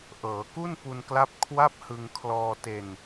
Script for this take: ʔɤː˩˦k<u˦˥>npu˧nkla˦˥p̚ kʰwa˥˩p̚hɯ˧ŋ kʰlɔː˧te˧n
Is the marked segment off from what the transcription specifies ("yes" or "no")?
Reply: yes